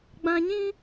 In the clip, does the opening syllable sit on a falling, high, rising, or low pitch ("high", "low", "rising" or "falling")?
high